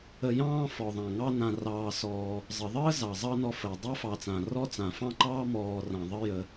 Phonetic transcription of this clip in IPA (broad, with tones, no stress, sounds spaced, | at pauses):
ə˨ j ɑ̃ː˦ f ɔ˩ ðˤ ã˩ ŋ ɑ˦ n ã˨ r ɑː˨ s ɔː˨ | zˤ ə˩ ðˤ əː˥ z ɑ˩ zˤ ɑ˦ n ɔ˨ f əː˩ dˤ a˥ f ɑ˨ t͡s ã˩ r ɔ˥ t͡s ã˩ f ɑ̃˥ ǃ ɑː˥ m ɔː˨ r ã˩ ðˤ ə˦ j ə˨